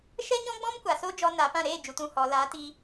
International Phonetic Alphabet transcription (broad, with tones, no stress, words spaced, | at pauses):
ʃɛ˦ɲɔ̃˦ɡ͡bɔ̃˦mkʷa˨ so˦d͡ʒɔ˧ na˨˦pã˦˨ ɾeː˦˨d͡ʒu˨t ũ˨hɔ˨ la˨˦ti˧